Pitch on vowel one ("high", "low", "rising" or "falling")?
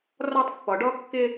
high